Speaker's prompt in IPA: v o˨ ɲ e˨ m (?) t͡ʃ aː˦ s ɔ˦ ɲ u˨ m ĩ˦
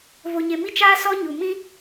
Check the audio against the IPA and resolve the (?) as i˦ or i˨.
i˦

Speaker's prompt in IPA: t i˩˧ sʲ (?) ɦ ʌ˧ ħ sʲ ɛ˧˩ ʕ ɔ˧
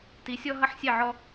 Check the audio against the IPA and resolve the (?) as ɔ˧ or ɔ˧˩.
ɔ˧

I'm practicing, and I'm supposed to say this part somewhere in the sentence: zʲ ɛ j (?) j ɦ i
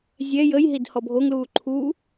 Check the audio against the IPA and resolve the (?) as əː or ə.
ə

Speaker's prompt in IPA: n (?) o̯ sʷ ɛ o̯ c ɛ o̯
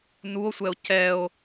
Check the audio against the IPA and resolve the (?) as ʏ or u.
u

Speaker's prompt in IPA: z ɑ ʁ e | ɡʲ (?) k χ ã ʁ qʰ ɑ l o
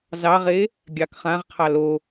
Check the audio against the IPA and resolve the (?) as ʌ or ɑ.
ɑ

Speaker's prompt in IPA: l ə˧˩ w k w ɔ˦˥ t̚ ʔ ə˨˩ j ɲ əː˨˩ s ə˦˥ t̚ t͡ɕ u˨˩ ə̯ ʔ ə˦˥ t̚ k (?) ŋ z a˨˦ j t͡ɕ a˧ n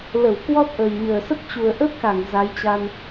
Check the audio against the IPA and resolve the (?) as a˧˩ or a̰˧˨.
a˧˩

